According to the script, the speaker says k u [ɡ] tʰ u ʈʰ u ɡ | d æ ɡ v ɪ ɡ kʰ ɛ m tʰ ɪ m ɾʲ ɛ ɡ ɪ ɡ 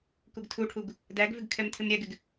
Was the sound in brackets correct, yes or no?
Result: yes